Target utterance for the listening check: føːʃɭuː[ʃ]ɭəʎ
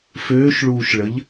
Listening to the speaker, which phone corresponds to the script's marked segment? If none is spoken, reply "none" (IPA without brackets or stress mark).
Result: ʃ